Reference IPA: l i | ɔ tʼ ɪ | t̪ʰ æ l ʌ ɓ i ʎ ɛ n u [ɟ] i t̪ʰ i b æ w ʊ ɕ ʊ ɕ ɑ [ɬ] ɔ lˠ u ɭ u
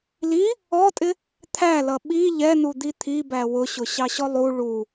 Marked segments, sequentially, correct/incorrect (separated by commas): incorrect, incorrect